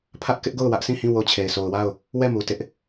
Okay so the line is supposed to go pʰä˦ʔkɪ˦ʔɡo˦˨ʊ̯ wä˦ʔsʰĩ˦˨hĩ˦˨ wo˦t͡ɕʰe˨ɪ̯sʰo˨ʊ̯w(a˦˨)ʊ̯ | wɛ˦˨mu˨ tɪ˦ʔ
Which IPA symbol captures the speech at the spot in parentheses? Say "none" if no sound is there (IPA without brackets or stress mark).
a˦˨